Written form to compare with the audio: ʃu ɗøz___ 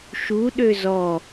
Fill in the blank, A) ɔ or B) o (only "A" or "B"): A